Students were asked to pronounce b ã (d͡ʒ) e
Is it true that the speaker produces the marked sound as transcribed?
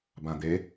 no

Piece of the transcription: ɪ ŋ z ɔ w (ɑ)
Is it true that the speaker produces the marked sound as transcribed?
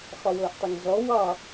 yes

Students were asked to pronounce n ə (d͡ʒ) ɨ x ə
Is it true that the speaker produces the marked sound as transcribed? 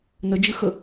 yes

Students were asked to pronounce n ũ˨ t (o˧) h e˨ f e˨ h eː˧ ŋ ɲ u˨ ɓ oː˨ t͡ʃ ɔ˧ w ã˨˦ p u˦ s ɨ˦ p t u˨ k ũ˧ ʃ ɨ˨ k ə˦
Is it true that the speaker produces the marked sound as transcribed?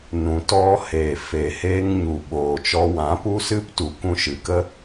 no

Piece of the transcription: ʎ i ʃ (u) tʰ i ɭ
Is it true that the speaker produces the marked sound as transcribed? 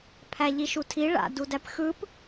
yes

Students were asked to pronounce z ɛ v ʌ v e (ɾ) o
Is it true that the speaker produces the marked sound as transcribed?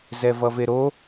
yes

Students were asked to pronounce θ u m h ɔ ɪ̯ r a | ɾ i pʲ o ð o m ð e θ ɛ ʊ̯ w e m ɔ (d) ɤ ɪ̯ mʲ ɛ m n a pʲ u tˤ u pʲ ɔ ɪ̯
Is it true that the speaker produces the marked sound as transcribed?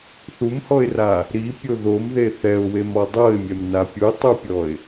no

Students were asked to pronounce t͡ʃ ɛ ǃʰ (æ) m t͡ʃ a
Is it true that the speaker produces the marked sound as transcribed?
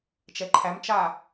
yes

